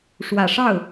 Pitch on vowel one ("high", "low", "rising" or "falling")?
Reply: low